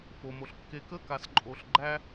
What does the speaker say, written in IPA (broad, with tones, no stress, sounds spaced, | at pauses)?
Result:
f o˨ m o˨ ɬ kː e˨ k ə˦˨ k a˨ s ǃʼ o˨ ɬ ɡ͡ǃ æ˦